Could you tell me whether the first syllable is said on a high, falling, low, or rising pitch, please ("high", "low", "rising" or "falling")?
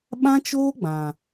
high